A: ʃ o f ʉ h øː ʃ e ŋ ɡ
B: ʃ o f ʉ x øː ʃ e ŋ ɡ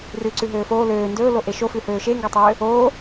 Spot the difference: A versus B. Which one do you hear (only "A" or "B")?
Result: A